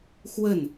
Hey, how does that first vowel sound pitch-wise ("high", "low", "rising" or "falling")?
falling